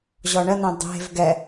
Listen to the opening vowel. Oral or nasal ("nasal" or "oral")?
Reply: oral